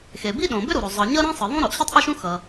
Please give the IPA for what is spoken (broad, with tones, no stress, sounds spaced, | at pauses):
x e˩ b i˥ ɗ õ˩ b ʏ˥ ɾ u˩ ɾ o˩ zˤ ʌ˩ ɲ ʌ˥ ɾ ẽ˥ sˤ ɯ˩ ðˤ ũ˥ ɾ o˩ ʔ ɕ ɯ˥ tˤ ʔ o˥ ʃ ũ˥ x ʌ˩